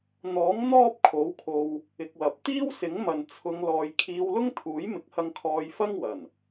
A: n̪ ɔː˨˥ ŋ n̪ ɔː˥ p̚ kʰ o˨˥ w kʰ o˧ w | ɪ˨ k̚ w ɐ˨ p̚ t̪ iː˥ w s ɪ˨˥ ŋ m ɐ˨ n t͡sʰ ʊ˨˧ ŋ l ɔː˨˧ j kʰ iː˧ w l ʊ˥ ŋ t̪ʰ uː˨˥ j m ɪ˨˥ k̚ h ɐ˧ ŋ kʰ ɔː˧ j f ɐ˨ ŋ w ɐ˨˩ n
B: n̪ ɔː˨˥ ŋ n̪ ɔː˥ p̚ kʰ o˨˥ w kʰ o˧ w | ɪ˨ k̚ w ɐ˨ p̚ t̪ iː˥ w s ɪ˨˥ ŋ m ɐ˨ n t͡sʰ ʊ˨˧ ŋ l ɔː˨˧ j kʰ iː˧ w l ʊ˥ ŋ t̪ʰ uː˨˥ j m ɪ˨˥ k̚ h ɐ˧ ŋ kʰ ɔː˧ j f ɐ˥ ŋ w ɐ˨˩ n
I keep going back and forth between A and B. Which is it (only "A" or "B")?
B